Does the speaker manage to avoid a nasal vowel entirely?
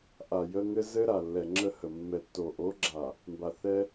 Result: yes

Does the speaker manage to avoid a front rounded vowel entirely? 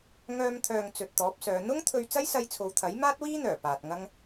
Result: no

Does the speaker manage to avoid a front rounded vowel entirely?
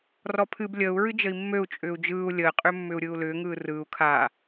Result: no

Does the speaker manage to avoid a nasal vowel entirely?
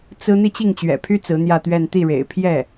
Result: yes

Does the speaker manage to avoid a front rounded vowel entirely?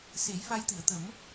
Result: yes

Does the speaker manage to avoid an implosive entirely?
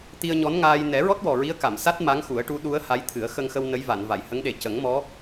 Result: no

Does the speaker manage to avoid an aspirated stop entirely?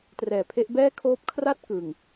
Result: no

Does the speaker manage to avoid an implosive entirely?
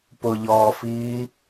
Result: yes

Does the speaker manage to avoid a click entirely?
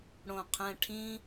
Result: yes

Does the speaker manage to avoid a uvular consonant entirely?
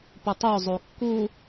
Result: yes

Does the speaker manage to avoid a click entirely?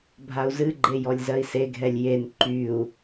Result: no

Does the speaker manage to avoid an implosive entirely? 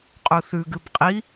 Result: yes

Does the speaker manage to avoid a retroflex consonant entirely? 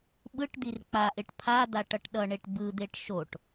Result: no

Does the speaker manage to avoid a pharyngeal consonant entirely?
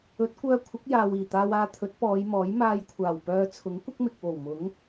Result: yes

